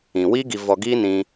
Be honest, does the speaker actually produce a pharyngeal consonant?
no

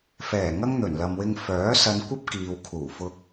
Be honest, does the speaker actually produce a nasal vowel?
no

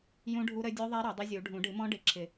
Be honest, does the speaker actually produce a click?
yes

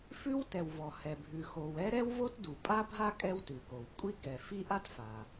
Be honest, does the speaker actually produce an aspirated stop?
no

